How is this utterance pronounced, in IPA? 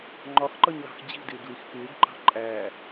ŋ͡ǃ ɒ x ǃ ʌ ɲ l ɑ̤ x d͡ʑ i̤ d ɪː ɡ l i x k ɪː ɡ ǃ ɑ̤ ǃʼ æː

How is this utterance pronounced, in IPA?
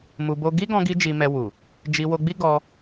m u˧ b o˦ ɡ i˦ ɡ ɔ̃˧ ɡ i˧ d͡ʒ i˧ m ɛ˧ w u˨ | d͡ʒ i˧ w o˧ ɡ͡b i˦ ɡ ɔ˧

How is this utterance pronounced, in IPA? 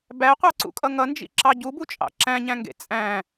b æ qʷ ɑ ǀ ṵ kʼ ʌ ŋ ʌ n d͡ʒ ḭ ǁ ɑ ɟ u b u t͡ʃʼ ɑ̰ ǁ æ̃ ɲ æ̃ ŋ ɡ ḛ t͡sʼ æ̃

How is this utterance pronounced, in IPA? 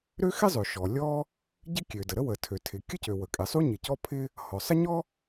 ɾ ø˥ x ɪ˥ zˤ ø˩ ʃ ɔ˩ lʲ ɔ˥ | ɟ ɪ˥ kʲ ø˩ d ə˩ ɾ ə˥ w ə˩ tʰ ø˩ tʰ ɪ˩ kʲ ə˥ c ø˩ w ə˩ kʼ ɪ˩ sˤ u˥ ɲ ɪ˩ c ɔ˥ pʰ ɪ˥ | h ɔ˩ sˤ ə˥ ɲ ɔ˥

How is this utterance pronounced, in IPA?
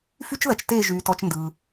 f y˦˥ t͡ʃ ð ɐ˩˧ t͡ʃ t eː˥˩ ʒ yː˩˧ t ɔ˩˧ t͡ʃ n d ɯ˩

